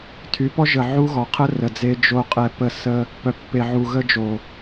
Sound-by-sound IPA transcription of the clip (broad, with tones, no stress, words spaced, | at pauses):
tʰy˨˦pɔ˦ʒə˨ ʕu˦ɣɔ˨ qʰə˦ rə˨d͡ze˦ d͡ʒo˦qʼɛ˦˨pə˦˨ sə˦ | pœ˨pːe˨ ʕu˨ɣə˦d͡ʒo˨